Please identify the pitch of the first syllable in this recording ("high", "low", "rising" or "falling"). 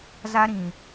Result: high